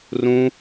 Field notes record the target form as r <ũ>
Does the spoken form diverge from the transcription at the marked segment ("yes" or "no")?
no